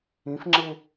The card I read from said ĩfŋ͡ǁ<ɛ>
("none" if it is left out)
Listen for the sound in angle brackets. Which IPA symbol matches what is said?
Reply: e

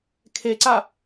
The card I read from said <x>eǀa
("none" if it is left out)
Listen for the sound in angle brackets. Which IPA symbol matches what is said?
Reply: kʰ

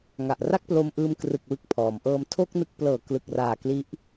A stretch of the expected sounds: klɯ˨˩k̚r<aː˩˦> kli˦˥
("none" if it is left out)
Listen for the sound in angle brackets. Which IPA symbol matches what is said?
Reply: aː˨˩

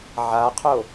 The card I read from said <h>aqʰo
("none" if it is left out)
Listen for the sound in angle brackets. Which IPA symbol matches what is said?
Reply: ʕ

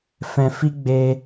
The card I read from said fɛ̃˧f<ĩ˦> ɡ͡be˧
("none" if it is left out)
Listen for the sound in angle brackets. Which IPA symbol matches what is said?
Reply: i˦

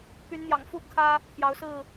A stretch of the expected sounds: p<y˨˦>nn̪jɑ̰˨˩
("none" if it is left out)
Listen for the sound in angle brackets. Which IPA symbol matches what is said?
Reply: y˨˦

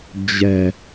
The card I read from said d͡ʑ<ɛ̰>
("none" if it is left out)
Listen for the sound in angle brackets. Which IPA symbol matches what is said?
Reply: ɛ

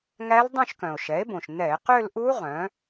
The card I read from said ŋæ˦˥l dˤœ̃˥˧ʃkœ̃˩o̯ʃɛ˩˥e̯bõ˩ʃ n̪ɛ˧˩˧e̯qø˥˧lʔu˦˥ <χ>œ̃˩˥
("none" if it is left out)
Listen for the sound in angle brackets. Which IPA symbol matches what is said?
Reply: ʁ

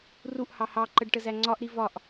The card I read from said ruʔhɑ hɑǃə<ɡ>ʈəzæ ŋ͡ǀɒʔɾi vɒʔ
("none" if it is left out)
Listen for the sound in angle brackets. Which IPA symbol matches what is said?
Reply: ɖ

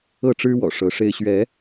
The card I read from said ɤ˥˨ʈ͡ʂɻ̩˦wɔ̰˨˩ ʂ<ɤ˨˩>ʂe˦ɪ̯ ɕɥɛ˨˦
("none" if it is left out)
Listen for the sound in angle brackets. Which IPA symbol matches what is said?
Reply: ɤ˨˦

